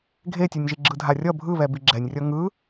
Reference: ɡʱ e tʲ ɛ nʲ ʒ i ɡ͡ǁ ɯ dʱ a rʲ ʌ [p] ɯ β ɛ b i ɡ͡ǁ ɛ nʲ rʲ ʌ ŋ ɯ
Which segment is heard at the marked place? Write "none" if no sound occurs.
bʱ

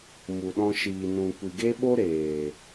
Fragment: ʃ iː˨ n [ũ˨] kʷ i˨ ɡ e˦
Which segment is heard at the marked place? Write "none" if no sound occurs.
ũ˨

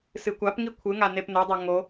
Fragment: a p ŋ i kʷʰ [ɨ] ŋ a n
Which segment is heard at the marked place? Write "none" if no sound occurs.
ɨ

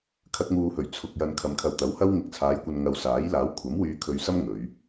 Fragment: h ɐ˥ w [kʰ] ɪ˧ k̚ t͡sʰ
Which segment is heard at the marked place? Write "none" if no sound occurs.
ŋ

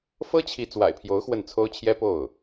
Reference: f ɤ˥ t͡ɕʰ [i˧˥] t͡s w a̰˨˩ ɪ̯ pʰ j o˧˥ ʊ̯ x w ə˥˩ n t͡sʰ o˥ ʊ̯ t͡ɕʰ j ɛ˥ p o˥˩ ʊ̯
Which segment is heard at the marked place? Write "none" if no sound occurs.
i˧˥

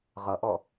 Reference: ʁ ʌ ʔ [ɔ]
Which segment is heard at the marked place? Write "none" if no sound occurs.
ɔ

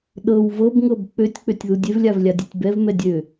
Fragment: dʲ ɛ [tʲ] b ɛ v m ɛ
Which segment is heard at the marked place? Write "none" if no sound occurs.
tʲ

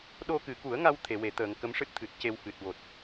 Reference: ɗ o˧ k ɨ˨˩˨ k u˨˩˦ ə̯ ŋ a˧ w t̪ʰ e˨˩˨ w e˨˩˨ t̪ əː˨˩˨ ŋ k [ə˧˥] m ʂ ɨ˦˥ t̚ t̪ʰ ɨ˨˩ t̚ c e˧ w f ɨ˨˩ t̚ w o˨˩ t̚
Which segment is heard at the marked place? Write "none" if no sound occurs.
ə˧˥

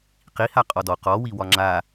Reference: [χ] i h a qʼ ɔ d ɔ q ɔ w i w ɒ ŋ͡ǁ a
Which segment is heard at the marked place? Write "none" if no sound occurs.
q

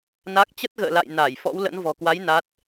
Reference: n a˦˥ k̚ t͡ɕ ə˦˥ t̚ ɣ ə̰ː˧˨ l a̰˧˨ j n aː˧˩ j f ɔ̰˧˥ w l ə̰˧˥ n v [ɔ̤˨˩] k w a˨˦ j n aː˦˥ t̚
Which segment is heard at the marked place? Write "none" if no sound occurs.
ɔ̤˨˩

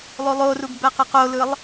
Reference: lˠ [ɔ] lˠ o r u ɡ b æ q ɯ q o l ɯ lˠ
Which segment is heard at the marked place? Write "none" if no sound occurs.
o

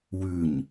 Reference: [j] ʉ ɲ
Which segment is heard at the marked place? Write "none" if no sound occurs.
w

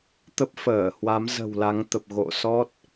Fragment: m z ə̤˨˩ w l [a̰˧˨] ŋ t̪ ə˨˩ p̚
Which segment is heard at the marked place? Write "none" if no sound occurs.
a˨˦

